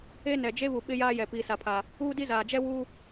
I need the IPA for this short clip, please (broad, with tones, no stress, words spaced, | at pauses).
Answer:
e˦nɛ˨ d͡ʒe˦βu˨ ɓɪ˦jaː˦jɛ˨ piː˨sa˨pʰa˨ | uː˦di˦ zaː˨d͡ʒɛ˦ wu˦